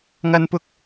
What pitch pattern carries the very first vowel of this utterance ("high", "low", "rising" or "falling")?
high